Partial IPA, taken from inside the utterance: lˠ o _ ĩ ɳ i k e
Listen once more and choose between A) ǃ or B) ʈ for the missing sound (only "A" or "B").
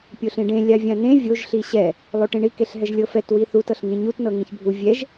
B